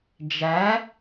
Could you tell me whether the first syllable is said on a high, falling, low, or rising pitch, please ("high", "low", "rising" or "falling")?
rising